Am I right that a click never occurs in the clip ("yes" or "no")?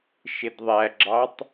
no